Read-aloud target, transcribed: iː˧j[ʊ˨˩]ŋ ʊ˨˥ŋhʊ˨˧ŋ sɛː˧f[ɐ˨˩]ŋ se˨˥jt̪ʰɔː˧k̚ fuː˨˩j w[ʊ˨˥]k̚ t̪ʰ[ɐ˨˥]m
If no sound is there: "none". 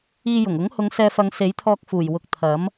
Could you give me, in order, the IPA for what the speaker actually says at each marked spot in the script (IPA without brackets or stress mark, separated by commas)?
ʊ˨˩, ɐ˨˧, ʊ˨, ɐ˨˥